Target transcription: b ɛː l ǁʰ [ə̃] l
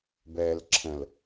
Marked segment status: correct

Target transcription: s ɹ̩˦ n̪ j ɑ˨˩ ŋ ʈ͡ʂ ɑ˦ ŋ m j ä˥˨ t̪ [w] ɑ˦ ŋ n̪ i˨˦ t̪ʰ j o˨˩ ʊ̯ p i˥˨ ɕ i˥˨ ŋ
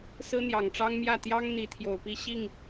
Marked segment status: incorrect: j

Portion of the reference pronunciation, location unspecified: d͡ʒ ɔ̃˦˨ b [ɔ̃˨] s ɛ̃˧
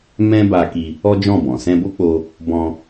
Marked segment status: correct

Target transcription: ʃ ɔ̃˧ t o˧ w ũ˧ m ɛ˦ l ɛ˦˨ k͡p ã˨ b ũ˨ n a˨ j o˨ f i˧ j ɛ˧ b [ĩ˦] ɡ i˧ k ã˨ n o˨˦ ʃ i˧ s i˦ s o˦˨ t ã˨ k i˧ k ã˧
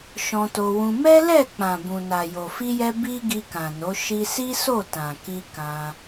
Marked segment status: incorrect: i˦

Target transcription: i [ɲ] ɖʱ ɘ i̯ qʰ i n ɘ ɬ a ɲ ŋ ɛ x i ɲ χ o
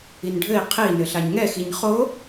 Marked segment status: incorrect: n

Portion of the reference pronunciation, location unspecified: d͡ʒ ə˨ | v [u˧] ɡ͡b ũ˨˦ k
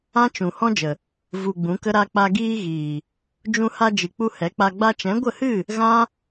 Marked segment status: correct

